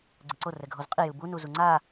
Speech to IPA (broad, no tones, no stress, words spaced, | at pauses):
ɡ͡ǀɯǀo rɛɡʱozqʼi jɯbu nuzuŋ͡ǀa